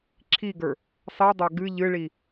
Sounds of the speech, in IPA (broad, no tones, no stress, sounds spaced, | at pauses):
ǁʰ i ɡ ə˞ | sˤ i dˤ ɐ ɡ ɨ ʎ ɨ ɭ i